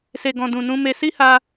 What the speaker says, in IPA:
s e˨ ɡ ɔ̃˨ d ũ˨ n ũ˧ m e˧ s i˦ h a˧

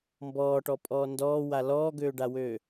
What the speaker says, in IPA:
m b ɔː ʈ ɔ pʼ ɔː n d ɔː w a l ɔː ɡ øː ɖ a w øː

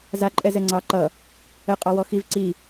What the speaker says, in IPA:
z a ǃʼ ɛ z ɛ ŋ͡ǀ ɑ ǃ ʌ | ə qʼ ɑ w ɔ x i v ǀ i

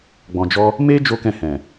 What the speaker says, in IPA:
ɡ͡b ɔ̃˨ d͡ʒ ɔ˧ | m e˦ d͡ʒ o˦ k ɛ̃˦˨ h ɛ̃˨

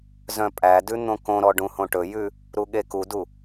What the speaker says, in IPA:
z œ̃ pʼ æ d ʉ n̪ õ k õ ɾ ɔ ɖ ũ h õ ʈ ɵ j ʉ | ɾ u ɠ e k u d u

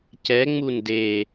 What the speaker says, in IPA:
c ɛ ŋ͡m u n d e

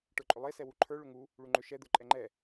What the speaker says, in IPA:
ʈ ə˞ ǃʼ ʏ lˠ e s ɛ w u ǃʰ ə˞ ɭ ʏ ŋ u | ɭ u ŋ͡ǃ ʏ ʃ ɛ d̪ ə˞ ǃʼ ɛ ŋ͡ǃ ɛ

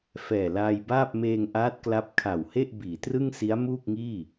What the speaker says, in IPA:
f ɛː˨˩ l aː˧ j b aː˥˩ p̚ m eː˧ ŋ ʔ aː˦˥ t̚ k l a˥˩ p̚ kʰ a˨˩ w h e˥˩ ʔ b iː˩˦ t r ɯ˥˩ ŋ s i˦˥ a̯ m uː˥˩ k̚ ŋ iː˥˩

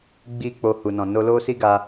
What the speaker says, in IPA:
ɡ͡b i˦ k͡p o˧ h u˨ n ɔ̃˨ n o˧ l o˦ s i˦ ɡ a˧

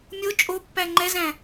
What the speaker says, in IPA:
mʲ o t͡ʃʼ o pː æ ŋ͡ǃ ɛ z æ̃

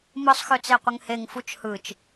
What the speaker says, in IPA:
m ɯ sˤ x ø t͡s e qʷ ə ŋ h e ŋ f u t͡ʃ h ɯ t͡ʃ

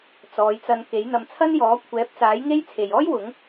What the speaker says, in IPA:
t͡s ɔː˨˧ j t͡s ɐ˧ n k e˨˥ j n̪ ɐ˨˧ m t͡sʰ ɐ˥ n j ɔː˨˥ kʷʰ ɛː˨˥ p̚ t͡s aː˨˥ j ŋ e˥ j t͡sʰ e˨ j ɔː˥ j w ʊ˨˥ ŋ

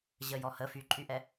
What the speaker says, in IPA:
ʑ əː j ɔ h ə f y ǃʼ y ʔ ɛ

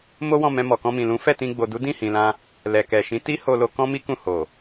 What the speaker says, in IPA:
m o˦ w ɔ̃˦˨ m ɛ̃˧ m ɔ˨ k ɔ̃˧ m ĩ˨ l ũ˨˦ f ɛ˦˨ t ĩ˧ ɡ͡b o˨ d u˨˦ d ĩ˦˨ h ĩ˨ l ã˧ | l ɛ˨ k ɛ˨ ʃ ĩ˨˦ t i˦ h o˧ l o˧ k ɔ̃˦ m i˦ k ũ˦˨ h o˨

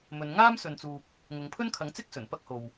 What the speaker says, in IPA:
m ɵ˨˧ n ŋ aː˥ m s ɵ˨ n t͡s uː˨ p̚ | ŋ ʊ˨˧ ŋ pʰ ɵ˥ n kʰ ɐ˨˥ ŋ t͡s ɪ˥ k̚ s ɵ˨˩ n p ɐ˥ k̚ h o˨ w

